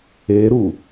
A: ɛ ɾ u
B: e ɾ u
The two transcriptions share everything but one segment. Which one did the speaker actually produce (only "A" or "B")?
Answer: B